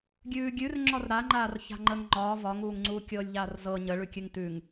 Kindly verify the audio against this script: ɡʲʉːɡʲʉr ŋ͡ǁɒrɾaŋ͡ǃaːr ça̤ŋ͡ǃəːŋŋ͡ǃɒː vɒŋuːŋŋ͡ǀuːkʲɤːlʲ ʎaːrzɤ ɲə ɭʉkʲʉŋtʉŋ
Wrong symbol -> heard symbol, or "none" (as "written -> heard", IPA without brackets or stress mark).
none